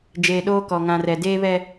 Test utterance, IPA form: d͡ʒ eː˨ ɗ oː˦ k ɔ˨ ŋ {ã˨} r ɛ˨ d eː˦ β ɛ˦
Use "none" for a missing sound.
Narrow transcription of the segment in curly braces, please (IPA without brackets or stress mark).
ã˨